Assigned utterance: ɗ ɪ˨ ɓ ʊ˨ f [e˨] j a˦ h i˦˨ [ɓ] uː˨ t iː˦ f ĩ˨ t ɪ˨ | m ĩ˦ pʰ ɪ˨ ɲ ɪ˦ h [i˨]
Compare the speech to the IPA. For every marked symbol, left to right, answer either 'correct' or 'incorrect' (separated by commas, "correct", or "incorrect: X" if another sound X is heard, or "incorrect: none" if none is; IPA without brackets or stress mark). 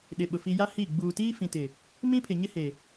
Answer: incorrect: i˨, incorrect: ɡ͡b, incorrect: e˨